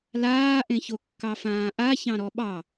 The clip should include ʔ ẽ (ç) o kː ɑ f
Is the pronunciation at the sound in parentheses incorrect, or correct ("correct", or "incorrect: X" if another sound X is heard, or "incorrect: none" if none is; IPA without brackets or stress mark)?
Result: correct